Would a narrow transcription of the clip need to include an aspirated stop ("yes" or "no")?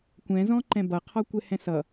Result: yes